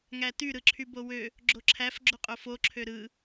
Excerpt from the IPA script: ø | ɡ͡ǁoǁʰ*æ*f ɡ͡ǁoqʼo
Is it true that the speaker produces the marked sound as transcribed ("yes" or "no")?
yes